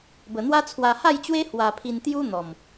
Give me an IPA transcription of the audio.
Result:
b ə˧ n̪ w a˦ t͡sʰ w a˧ h a˥˧ j t͡ɕ w e˦ h w a˧ pʰ i˧ n t̪ j u˦ n̪ ɔ˨˩ m

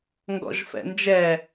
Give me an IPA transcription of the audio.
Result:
ŋ ɡ ɔ̰ ʒ f ɛ̰ n d͡ʒ ɛ

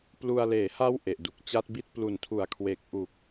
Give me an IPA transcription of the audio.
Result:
p l u˧ a̯ l eː˩˦ h a˦˥ w ʔ e˨˩ ʔ d u˨˩ k̚ t͡ɕ a˦˥ t̚ b i˥˩ t̚ p l u˨˩ n tʰ u˨˩ a̯ kʰ w e˨˩ k̚ ʔ u˨˩ k̚

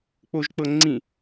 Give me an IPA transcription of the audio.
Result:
k͡p o ʒ k͡p ɤ ŋ͡ǀ ĩ

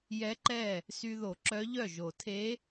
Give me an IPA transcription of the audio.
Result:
j ɛ˧˥ ǃ ɛ˥˩ | s y˨ ð o˨˩˦ ǁ œ˧˥ ʎ œ˥˩ ʒ o˨˩˦ tʰ e˧˥

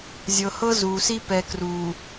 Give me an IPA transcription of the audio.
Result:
zʲ ɤ˨ h ɤ˦ z uː˨ s i˦ p ɛ˨ k r uː˨

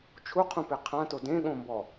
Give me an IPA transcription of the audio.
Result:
t͡ʃʰ u qʰ ũ p e qʰ ã t o d ẽ ɠ õ m b ɔ

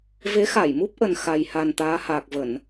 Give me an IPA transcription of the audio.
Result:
v e˨˦ x a˧˩ j m u˦˥ p̚ ʔ ə˨˩ n x a˨˩ j h a˨˩ n t̪ aː˨˦ h aː˨˩ k̚ v ə˧˩˨ n

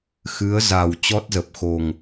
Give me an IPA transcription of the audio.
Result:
x ɨ˨˦ ə̯ z a˨˩ w t͡ɕ ɔ˦˥ t̚ z ə˨˩ p̚ x o˨˩ ŋ

